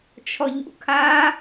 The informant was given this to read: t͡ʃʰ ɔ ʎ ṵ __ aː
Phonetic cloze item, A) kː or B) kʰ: B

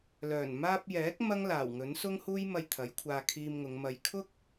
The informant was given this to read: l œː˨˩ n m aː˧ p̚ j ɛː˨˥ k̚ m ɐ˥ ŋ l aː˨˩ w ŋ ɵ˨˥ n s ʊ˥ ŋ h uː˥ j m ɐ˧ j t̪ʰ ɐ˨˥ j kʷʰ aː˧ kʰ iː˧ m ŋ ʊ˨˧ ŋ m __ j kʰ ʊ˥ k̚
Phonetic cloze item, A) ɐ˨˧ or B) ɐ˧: B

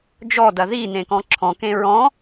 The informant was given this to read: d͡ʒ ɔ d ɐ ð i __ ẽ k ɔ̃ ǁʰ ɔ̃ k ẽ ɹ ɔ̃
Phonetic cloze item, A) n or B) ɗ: A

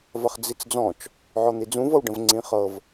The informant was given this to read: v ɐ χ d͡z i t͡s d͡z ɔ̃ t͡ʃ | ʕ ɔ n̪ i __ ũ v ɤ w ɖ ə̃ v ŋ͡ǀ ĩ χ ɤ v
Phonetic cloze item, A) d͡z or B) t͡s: A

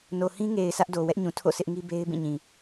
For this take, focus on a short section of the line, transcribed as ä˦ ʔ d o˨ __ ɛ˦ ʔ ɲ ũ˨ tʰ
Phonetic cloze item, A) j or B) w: B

